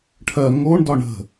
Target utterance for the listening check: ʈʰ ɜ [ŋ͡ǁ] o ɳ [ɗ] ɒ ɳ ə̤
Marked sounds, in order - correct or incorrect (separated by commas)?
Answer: incorrect, incorrect